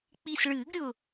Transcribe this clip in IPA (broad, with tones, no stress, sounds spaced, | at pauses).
k͡p i˧˩ s ɭ ɨː˨˩˦ ɡ ɾʲ ʊ˧˩